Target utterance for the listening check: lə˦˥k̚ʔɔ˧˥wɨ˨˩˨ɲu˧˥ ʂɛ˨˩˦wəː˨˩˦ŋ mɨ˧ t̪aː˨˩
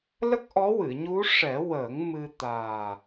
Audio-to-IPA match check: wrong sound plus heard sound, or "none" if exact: none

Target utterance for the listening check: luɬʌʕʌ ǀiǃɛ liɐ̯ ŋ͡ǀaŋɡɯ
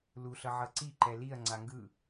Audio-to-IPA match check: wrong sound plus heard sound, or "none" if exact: none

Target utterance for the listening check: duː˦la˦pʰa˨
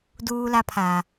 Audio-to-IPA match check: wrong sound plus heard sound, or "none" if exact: none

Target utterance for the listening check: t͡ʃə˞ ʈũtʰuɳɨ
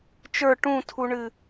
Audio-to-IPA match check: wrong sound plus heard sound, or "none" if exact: none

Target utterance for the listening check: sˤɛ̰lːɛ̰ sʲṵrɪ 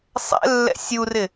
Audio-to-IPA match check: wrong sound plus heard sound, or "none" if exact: ṵ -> u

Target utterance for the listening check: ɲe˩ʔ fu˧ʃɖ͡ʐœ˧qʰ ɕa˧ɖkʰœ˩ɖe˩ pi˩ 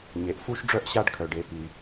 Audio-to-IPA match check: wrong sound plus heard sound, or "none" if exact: qʰ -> ʔ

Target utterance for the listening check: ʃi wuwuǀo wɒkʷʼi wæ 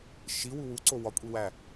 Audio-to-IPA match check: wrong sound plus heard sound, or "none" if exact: none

